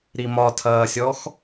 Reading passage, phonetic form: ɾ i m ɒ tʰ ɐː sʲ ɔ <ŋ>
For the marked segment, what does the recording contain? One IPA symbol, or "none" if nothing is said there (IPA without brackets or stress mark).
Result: x